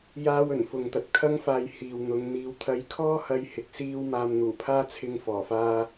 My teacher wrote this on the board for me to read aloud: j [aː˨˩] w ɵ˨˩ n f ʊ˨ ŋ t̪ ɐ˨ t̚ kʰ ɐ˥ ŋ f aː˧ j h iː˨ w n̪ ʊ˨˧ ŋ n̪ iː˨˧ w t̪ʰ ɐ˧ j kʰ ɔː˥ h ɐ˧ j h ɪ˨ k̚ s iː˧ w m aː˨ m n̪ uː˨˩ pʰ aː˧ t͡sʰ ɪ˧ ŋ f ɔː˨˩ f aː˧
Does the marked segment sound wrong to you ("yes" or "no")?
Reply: yes